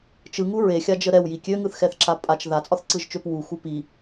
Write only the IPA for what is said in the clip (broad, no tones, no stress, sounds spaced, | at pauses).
t͡ʃ ɯ ŋ u ɹ e xʲ a d͡ʒ ə ɾ ɛ w j i kʲ ø ŋ ɯ θ x ɛ θ ǁ a pʼ a t͡ʃ ð a t͡sʼ ɒ θ ǀ ɯ ʒ t͡ʃ ø p w u x u p i